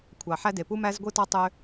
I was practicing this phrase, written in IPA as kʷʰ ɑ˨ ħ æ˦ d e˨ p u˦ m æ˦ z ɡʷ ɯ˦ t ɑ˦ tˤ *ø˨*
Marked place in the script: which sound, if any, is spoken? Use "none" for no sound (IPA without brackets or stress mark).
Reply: ø˦